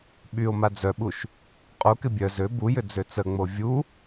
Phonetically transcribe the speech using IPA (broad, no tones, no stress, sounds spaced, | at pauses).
ɓ y o̯ m a d͡z œ ɓ u ʃ | qʼ u k ɪ bʲ œ z ø b u j ʏ d͡z ø t͡s ə ŋ͡m o vʲ u